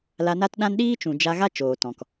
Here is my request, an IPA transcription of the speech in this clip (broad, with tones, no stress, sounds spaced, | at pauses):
l a˧ n a˦ t ɗ ã˦ n ɗ iː˦ t͡ʃ ũ˨ d͡ʒ a˧ ɣ a˦ t͡ʃ oː˨ t ɔ̃˨ k